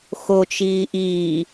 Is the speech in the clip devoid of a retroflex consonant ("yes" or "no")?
yes